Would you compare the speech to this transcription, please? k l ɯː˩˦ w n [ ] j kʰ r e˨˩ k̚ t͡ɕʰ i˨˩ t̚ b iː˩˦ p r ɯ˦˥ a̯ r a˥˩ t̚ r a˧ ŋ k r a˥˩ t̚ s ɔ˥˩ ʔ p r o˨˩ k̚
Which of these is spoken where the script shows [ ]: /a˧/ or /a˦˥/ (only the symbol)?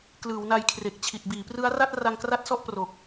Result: a˧